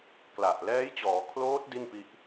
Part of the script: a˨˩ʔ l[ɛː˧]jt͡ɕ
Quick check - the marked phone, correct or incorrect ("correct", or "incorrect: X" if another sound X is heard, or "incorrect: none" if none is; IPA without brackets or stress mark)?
incorrect: ɛː˦˥